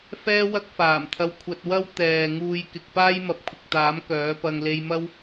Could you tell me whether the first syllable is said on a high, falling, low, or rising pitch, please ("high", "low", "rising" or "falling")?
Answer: high